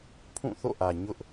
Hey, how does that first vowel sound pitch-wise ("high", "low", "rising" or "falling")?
falling